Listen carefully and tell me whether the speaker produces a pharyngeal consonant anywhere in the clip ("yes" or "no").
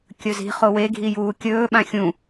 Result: no